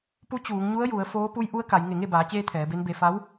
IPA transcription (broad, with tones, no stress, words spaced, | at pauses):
pu˧˥ t͡ɕuː˩˧ŋɲu˧˥ə̯ju˩˧ə̯ foː˧˥ pu˧˥jʔu˧˥ə̯ka˩˧j ŋe˧˩ŋe˥˨baː˩˧t͡ɕeː˧ t̪ʰɛː˩˧be˧˥nbe˧ fa˧˥w